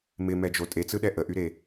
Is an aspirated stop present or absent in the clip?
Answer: absent